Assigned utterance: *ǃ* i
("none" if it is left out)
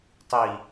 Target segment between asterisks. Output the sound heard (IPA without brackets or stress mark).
tˤ